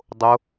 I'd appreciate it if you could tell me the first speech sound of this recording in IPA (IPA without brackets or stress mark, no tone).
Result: dˤ